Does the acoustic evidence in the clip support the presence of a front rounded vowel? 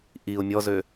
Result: yes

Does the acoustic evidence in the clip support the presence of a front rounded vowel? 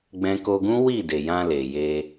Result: no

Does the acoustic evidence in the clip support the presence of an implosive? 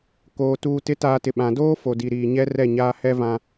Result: yes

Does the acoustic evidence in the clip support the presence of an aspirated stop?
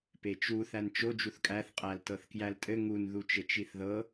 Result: no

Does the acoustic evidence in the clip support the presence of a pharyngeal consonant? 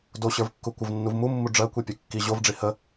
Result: no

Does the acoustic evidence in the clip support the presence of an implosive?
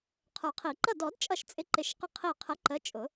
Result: no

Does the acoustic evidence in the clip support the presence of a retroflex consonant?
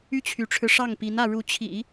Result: yes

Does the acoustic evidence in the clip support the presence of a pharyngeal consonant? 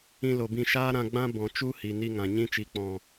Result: no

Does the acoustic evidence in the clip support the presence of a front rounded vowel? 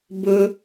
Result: no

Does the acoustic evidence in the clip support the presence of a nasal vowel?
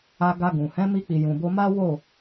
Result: yes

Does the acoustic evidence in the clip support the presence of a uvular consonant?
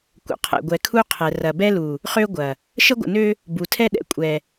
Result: yes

